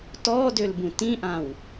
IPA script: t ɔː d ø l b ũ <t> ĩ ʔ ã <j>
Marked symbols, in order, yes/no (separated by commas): yes, no